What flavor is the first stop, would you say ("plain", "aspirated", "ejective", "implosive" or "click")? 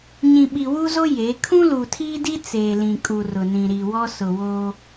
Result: implosive